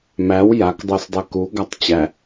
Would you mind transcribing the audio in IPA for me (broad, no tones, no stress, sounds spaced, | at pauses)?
m æ w j a k dˤ o s dˤ ɛ k u ɡ a tˤ t͡ɕ æ